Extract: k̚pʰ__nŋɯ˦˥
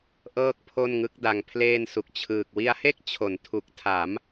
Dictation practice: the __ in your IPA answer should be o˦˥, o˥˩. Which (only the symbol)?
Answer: o˥˩